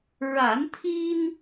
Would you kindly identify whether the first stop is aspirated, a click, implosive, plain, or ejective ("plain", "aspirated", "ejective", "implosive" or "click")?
aspirated